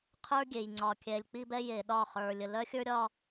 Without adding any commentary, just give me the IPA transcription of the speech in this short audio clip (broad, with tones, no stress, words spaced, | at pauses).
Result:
qʰə˞˦ɡʲe˨j ŋ͡ǀɒ˨kʲɛ˨lʲ k͡pi˦bɛ˦je˨ɗɒ˦˨ χə˞˨lʲə˨ lœ˦xʲə˞˦ɾʲɒ˦